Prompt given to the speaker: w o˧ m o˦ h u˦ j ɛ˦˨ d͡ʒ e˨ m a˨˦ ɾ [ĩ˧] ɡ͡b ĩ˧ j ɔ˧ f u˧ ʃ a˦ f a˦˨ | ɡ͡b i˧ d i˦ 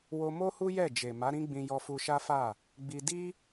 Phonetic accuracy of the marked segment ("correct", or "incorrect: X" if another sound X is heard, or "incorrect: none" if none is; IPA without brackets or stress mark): incorrect: ĩ˦